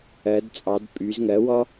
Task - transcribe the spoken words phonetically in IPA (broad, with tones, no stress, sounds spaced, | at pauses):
ɜ˩˧ d t͡sʼ ɑ˩˧ d pʼ y˩˧ z ŋ ɜ˩˥ w ɔ˦